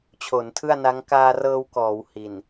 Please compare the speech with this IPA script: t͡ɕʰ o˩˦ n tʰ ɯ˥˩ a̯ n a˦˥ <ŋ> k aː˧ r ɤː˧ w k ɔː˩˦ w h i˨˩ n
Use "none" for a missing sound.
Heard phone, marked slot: ŋ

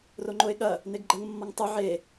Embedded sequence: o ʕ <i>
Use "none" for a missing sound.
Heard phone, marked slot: e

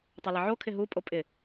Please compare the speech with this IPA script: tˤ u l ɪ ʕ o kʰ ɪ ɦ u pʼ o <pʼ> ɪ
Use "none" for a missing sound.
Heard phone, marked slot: pʼ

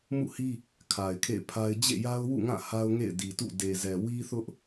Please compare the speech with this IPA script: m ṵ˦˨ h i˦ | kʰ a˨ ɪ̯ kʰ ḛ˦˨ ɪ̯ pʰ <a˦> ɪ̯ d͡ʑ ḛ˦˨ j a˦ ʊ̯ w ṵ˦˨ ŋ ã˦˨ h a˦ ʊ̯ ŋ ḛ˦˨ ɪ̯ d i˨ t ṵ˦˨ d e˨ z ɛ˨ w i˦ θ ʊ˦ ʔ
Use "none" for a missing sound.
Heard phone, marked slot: a˦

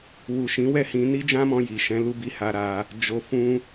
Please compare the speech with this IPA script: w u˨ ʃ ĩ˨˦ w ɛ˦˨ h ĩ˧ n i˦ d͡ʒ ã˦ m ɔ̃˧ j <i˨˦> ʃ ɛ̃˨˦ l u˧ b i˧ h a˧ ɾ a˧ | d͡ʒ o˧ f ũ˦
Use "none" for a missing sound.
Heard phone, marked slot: i˨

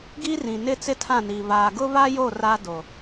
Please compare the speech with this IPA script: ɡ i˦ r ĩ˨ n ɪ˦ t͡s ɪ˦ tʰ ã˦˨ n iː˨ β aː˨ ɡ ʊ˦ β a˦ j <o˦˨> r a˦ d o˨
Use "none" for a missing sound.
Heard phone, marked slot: o˦˨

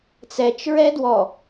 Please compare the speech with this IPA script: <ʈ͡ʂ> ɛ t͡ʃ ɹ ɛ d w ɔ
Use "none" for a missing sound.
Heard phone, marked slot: t͡s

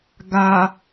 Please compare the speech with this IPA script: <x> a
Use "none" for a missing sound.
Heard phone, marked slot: ɡ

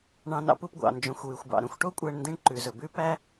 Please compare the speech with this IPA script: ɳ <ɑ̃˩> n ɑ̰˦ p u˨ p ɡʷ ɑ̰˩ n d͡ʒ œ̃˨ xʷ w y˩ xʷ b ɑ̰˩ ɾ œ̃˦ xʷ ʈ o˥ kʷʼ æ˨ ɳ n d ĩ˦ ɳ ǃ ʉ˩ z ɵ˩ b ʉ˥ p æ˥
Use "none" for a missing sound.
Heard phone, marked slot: ɑ̃˨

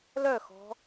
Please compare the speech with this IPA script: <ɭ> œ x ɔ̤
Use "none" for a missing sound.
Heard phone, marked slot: l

